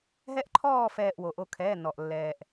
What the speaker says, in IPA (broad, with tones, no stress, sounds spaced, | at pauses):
ɦ ɛ˧˥ ʔ ǃʰ ɔː˦˨ f ɛː˦˨ ʔ w o˩ ʔ o˦˨ kʰ ɛː˩˧˩ n ɔ˩ ʔ lː ɛː˩ ʔ